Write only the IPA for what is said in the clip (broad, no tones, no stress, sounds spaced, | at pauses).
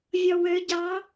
vʲ ɔ w ø ɟ ɑ